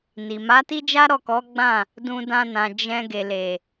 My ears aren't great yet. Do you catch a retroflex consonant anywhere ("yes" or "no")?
no